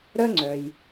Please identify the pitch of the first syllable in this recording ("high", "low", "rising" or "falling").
high